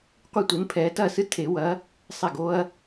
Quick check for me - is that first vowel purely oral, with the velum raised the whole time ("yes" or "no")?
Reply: yes